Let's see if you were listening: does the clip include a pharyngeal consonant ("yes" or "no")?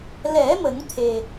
no